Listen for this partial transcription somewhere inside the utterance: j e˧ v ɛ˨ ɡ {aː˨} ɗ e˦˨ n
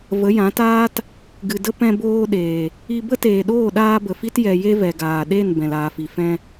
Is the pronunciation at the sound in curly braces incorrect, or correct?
correct